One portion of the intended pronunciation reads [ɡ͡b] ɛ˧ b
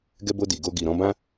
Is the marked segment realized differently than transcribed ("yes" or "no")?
yes